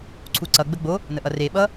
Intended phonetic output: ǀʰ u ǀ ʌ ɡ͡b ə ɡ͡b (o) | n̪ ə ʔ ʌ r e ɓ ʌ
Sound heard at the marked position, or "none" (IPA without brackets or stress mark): o